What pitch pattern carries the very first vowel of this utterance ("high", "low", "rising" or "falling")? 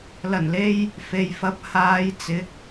low